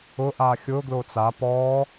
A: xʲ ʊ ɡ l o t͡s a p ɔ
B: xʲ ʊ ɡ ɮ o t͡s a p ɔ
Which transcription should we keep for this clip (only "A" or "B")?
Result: A